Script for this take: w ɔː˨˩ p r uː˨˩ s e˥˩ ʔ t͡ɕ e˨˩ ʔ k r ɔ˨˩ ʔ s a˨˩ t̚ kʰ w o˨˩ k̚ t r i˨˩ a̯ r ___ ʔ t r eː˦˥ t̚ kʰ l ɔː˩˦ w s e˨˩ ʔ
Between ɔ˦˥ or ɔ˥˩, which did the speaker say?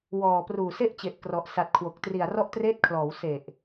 ɔ˦˥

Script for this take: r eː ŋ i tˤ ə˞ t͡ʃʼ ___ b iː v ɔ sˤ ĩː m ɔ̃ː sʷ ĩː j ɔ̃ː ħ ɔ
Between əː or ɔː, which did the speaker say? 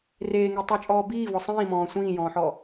ɔː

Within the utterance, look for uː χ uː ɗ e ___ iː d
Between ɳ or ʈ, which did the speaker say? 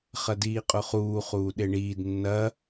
ɳ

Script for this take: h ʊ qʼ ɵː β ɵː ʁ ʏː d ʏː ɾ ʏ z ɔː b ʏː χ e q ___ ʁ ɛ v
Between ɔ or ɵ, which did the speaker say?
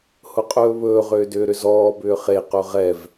ɵ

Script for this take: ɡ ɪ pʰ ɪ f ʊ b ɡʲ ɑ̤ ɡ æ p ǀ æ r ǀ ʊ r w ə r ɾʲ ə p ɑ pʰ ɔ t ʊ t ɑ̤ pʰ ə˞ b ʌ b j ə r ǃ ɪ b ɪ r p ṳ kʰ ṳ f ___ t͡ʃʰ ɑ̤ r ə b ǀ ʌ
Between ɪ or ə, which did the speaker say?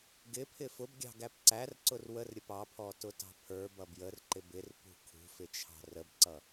ɪ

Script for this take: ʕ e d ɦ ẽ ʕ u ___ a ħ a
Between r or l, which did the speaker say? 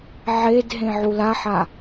l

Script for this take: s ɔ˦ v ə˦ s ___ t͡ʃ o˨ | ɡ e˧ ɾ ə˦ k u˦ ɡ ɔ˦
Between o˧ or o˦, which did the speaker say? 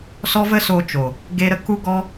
o˧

